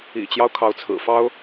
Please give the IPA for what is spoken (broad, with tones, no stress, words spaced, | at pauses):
ḭ˨˩t͡ɕjɑ˦ʊ̯ kʰɑ˧˥ʊ̯t͡sʰɹ̩˨˩fɑ˥ʊ̯